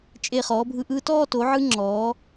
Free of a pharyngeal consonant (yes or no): no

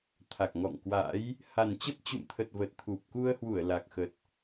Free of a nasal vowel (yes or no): yes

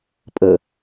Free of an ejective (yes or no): no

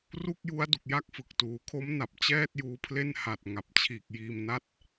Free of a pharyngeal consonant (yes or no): yes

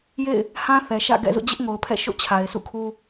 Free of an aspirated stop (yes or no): no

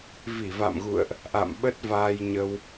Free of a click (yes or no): yes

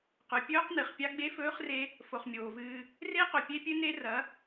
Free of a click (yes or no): yes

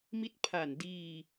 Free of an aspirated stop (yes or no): no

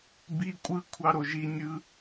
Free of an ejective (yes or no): no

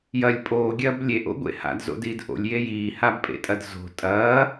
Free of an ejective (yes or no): no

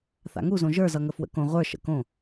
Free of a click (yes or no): yes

